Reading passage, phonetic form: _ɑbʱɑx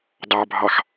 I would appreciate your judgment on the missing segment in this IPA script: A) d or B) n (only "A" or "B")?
A